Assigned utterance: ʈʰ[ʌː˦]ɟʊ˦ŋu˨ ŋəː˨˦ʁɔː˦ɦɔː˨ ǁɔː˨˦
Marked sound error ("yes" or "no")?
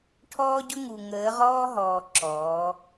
yes